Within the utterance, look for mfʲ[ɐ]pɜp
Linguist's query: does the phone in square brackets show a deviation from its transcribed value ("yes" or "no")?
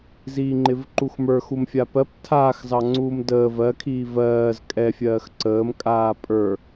yes